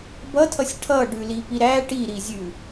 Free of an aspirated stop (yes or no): no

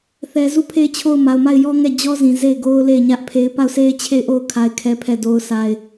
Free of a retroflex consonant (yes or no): yes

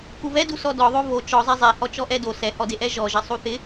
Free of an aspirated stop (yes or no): yes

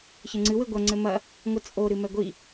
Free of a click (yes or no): no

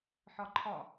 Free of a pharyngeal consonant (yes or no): no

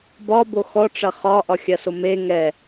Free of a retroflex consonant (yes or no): no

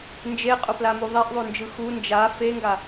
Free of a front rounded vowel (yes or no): yes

